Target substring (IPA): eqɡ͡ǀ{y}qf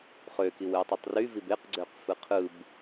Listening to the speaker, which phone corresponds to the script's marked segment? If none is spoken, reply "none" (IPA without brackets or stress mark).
ø